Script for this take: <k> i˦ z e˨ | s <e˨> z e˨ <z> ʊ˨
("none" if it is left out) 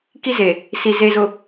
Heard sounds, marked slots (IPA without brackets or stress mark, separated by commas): k, i˨, z